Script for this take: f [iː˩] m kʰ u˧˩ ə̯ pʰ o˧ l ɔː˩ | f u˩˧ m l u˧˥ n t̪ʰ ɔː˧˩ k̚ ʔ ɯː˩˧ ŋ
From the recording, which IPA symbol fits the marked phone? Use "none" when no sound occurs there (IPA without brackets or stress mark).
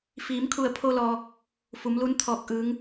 iː˩˧